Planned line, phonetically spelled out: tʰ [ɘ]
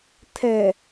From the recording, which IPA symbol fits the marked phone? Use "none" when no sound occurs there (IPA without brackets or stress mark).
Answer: ɛ